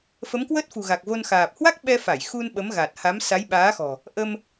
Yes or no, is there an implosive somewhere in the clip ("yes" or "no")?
yes